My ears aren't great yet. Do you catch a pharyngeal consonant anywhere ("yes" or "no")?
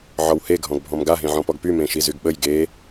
yes